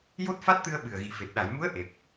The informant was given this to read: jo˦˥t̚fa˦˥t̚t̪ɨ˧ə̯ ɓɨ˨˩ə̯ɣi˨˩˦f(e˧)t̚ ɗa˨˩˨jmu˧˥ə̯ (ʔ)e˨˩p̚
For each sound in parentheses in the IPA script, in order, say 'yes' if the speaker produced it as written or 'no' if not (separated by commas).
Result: no, yes